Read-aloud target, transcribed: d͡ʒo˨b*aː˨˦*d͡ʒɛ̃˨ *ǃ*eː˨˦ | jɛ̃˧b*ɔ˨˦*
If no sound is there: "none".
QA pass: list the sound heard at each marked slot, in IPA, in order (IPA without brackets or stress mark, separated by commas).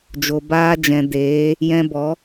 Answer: aː˧, d, ɔ˨˦